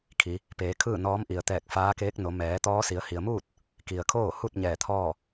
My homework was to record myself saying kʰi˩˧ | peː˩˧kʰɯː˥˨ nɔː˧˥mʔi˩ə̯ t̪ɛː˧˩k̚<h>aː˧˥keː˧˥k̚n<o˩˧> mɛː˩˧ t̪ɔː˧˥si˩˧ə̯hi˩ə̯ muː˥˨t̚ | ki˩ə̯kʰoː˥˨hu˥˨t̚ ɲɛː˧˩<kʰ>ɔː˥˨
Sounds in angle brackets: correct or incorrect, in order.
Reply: incorrect: f, correct, incorrect: t̪ʰ

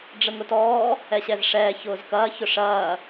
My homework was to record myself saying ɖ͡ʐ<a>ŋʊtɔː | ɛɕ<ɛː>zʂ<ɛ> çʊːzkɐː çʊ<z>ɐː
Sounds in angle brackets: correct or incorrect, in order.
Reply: incorrect: ə, incorrect: ɛ, incorrect: ɛː, incorrect: ʂ

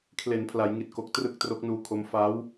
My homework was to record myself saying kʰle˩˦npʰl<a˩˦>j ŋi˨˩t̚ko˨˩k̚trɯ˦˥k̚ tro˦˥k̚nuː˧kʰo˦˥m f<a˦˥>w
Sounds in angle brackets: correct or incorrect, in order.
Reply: correct, incorrect: aː˦˥

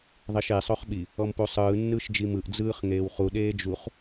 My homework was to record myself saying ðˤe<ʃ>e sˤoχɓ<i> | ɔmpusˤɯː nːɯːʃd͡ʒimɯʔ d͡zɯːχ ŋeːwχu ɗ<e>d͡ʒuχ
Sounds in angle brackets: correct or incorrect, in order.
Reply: correct, correct, incorrect: eː

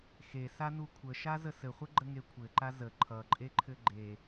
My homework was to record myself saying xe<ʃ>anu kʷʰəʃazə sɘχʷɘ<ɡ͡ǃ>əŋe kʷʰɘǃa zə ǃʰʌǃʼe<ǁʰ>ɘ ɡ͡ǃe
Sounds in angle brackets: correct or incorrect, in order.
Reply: incorrect: s, correct, incorrect: ǃʰ

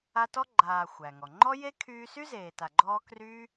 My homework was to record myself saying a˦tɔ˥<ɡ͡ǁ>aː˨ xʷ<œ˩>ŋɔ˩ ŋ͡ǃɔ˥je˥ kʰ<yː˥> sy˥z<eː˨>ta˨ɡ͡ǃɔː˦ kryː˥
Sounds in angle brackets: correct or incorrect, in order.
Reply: incorrect: ɡ͡ǃ, incorrect: æ˩, incorrect: yː˦, correct

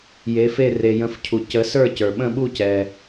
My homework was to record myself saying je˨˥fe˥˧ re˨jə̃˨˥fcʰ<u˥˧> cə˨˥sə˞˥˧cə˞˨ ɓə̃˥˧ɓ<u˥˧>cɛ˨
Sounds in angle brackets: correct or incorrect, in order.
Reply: incorrect: u˨, correct

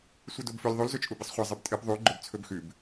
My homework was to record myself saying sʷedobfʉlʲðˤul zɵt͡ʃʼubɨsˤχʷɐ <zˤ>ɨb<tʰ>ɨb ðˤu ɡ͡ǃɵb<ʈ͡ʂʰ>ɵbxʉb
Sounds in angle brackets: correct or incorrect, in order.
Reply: correct, incorrect: tʼ, incorrect: t͡sʰ

